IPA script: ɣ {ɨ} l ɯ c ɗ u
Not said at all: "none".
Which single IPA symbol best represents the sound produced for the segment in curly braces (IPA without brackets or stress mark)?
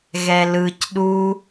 ɛ